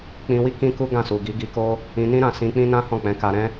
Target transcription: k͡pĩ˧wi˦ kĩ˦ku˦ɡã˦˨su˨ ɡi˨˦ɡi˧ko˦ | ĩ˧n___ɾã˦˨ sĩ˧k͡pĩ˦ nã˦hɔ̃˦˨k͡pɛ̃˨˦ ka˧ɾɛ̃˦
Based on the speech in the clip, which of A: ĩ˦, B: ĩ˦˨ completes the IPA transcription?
A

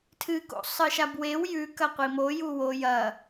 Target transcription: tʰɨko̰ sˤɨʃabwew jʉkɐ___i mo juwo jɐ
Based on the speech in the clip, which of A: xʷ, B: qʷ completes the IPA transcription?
B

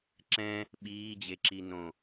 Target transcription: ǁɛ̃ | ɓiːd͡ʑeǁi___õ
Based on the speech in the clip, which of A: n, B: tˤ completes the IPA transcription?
A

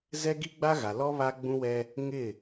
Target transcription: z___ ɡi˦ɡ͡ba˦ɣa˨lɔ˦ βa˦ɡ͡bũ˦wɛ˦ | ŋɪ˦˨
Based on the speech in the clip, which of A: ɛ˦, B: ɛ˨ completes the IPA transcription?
A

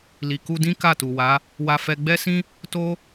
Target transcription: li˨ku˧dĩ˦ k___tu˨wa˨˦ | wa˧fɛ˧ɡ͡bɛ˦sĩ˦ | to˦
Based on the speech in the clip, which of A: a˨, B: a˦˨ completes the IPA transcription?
B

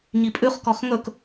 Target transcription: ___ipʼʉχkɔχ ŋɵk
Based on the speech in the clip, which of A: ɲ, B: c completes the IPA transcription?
A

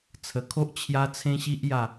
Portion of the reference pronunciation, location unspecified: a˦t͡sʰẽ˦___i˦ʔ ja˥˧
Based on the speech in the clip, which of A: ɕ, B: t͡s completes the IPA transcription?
A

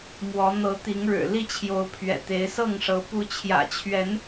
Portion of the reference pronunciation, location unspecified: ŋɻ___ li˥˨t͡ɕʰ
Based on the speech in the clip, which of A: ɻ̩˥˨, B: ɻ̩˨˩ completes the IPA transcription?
B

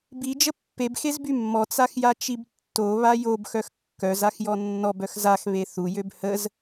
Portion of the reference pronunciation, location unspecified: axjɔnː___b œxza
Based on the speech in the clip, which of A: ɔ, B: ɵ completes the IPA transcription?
A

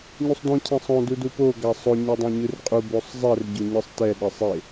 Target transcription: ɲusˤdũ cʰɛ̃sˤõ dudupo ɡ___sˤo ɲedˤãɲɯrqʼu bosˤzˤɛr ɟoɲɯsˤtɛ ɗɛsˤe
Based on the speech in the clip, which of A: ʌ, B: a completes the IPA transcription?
B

